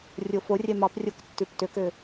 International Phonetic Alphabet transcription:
rʲoforʲɛ mɑprʲok tːʉptøkø

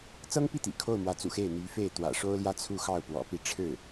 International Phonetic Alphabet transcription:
t͡sɤ˥ŋpi˥˩t̪ḭ˨˩ kʰo˥˩ʊ̯mwä˧˥t͡sṵ˨˩ xe˥˩ɪ̯n̪y˧˥fe˥˩ɪ̯ t̪wä̰˨˩ʂo˥ʊ̯ljä˥˧ t͡sʰu˥˧ xɑ˥˩ʊ̯ pwɔ̰˨˩pi˥˧ ʈ͡ʂʰɻ̩˥˩

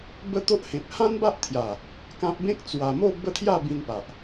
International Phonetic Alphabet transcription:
bə˦t̪o˦ʔhẽ˨p̚ hã˦nba˦ʔt̪ʰja˨˩ | kã˦p̚ bẽ˦k̚t͡swa˨˩mo˥˧ bə˥˧t̪ʰja˥˧bĩ˧npa˨ʔ

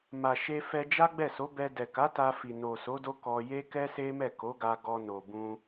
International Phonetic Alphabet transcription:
ma˨ʃe˧fɛ˧ d͡ʒa˦ɡ͡bɛ˦˨so˨˦bɛ˧ dɛ˨ka˨˦ ta˧fi˨no˨so˨˦ do˦kɔ˧ je˦kɛ˦se˦ mɛ˦˨ ko˨˦ɡa˧ ɡɔ˧ no˨bũ˧

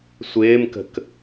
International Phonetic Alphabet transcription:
sʷɪːmkə̤k

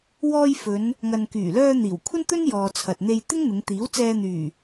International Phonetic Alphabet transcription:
wɔː˧j fɵ˨˧n | ŋɐ˨nkyː˨˩lœː˧ n̪iː˨˩w kʷʰɐ˥nt̪ɵ˥n jɔː˨t͡sʰɐ˨t̚n̪e˧j t̪ɪ˥ŋn̪ɪ˨˧ŋt̪iː˨˥wt͡sɛː˧ n̪yː˨˩

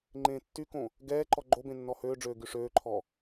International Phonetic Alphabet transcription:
ŋ͡ǃẽːtːykõ | ɡɛːǃɔ ɡ͡ǃobẽ nːɔhøːɖ͡ʐøː ɡyʂøːǃʰɔ

